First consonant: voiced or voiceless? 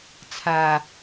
voiceless